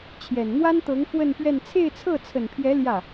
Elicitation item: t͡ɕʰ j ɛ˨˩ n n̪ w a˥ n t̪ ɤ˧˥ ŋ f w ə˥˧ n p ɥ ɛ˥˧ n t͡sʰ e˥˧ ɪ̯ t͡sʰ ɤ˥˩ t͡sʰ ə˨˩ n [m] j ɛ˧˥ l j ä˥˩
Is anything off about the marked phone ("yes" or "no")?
yes